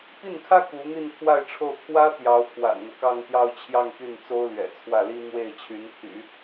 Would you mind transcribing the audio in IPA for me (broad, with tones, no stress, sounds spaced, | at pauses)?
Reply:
p i˥˩ n kʰ ä˥ k u˧˥ n̪ i˥˧ n pʰ w a˥˧ ɪ̯ ʈ͡ʂʰ o˥˩ ʊ̯ t̪ʰ w ä˥ t̪ j ɑ˧˥ ʊ̯ pʰ w a̰˨˩ n n̪ ɤ˦ k ɑ˥˧ ŋ t̪ j ɑ˥˧ ʊ̯ t͡ɕʰ j ɑ˥˧ ŋ t̪ y˥˩ n t͡s o˥ ʊ̯ l ɥ ɛ̰˨˩ t͡sʰ w ä˥˩ l i˥ n̪ w e˥˩ ɪ̯ t͡ɕʰ y˧˥ n t̪ʰ y̰˨˩˦